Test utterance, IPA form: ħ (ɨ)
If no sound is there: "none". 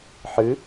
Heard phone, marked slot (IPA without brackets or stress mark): ɨ